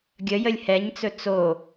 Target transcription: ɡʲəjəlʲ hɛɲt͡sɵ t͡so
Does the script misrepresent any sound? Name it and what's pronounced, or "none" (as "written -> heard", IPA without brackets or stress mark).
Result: none